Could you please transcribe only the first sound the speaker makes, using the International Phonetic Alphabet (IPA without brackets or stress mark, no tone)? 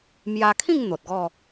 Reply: m